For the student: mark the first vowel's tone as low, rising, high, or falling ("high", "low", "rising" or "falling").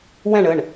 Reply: falling